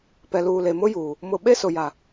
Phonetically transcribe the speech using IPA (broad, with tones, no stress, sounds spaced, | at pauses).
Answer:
p ɛ˨ l uː˨ l e˨ m ʊ˦ j uː˨ | m ʊ˨ ɓ e˦ s ʊ˨ j a˨